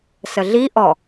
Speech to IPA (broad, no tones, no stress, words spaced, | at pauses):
səɮi ʔɔ